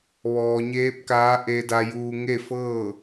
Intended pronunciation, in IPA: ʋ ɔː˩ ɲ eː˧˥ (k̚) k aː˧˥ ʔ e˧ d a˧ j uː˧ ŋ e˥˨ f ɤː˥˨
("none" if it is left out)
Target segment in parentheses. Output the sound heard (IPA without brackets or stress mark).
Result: p̚